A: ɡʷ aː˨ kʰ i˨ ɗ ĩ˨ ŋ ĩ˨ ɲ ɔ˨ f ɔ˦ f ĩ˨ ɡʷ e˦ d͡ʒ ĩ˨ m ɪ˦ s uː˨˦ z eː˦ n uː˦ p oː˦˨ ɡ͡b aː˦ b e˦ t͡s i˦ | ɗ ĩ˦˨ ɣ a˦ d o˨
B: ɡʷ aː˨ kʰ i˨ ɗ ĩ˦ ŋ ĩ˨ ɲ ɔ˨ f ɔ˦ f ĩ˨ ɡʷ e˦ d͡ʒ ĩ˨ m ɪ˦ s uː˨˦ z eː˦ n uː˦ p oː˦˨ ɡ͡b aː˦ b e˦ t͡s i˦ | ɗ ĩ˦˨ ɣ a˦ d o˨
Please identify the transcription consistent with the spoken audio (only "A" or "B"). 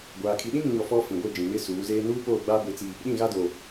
B